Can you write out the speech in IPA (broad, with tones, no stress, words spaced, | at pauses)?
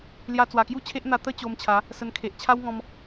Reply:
lja˧t͡swa˨˩kju˦t͡ɕʰe˦ʔ n̪a˧t̪ə˦ t͡ɕo˧mt͡ɕʰa˨˦ | sə˧nkʰe˨ʔ t͡ɕʰa˦wŋɔ̃˧m